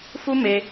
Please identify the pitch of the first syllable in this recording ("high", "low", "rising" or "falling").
high